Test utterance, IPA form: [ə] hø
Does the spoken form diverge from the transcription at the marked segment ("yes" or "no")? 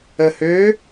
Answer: no